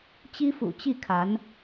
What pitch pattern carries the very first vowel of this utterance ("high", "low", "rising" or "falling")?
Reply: high